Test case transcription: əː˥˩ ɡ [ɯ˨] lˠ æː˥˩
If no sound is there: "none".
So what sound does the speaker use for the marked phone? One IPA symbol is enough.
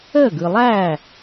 ɯ˨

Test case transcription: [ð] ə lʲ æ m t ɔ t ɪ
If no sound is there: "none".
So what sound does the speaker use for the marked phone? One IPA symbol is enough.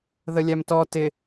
ð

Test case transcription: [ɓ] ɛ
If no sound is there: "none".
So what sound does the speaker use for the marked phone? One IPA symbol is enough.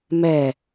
m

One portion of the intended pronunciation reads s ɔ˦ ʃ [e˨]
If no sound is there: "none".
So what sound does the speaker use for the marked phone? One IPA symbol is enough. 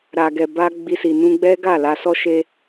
e˦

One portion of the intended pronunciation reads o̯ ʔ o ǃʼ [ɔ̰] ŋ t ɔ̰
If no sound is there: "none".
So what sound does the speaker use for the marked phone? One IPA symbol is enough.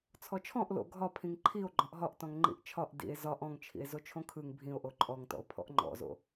ɔ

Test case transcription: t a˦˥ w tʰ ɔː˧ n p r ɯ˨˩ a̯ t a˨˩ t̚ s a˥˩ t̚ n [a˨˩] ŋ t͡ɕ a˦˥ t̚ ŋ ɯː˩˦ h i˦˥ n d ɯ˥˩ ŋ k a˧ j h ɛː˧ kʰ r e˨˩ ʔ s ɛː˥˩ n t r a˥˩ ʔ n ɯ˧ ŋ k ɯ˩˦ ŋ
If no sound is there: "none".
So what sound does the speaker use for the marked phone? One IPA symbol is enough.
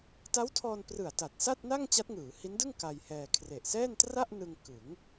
a˥˩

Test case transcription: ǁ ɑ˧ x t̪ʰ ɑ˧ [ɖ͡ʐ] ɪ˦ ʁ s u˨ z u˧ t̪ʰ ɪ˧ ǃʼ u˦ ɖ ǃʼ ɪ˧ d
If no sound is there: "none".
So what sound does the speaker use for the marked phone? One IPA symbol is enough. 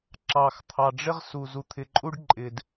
ɖ͡ʐ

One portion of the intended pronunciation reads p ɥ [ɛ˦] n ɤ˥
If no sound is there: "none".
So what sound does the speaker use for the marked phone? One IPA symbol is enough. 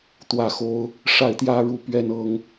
ɛ˥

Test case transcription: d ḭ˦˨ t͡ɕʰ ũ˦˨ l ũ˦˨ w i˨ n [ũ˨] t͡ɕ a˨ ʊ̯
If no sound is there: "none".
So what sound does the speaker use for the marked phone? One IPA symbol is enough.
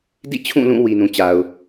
ũ˨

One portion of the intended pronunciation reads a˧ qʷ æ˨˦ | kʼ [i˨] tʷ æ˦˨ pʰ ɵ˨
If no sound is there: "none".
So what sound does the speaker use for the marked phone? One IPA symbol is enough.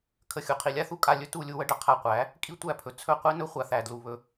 i˦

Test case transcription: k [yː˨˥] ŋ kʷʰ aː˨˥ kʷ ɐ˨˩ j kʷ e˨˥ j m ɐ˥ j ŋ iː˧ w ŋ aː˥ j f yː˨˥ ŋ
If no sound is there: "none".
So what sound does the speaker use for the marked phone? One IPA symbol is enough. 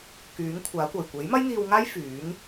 yː˨˥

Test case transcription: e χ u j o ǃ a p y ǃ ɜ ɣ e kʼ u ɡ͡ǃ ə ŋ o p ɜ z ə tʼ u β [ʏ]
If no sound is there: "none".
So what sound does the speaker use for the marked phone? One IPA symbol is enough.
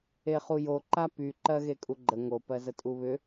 ʏ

